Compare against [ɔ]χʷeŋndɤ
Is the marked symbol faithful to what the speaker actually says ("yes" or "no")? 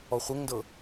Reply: yes